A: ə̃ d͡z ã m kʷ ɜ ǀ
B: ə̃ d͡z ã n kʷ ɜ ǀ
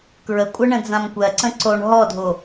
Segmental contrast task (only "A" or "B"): A